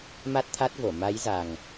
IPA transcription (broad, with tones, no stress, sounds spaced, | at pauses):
m a˦˥ t̚ t̪ʰ a˦˥ t̚ v o˧˩ m a˨˦ j z a˨˩ ŋ